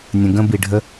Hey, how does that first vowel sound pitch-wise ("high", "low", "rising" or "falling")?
low